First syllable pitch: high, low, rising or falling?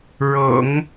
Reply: low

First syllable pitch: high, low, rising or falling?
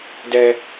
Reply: high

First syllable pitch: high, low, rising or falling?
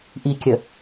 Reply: low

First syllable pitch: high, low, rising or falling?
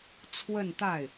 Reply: falling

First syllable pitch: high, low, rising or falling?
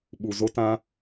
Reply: low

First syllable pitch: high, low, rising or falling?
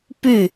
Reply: falling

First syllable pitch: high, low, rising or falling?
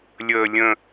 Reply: high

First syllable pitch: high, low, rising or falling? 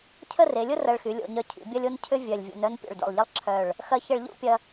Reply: falling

